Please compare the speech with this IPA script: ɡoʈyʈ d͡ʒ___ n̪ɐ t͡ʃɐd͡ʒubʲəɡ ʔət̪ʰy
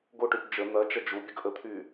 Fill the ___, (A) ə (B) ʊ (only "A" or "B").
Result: A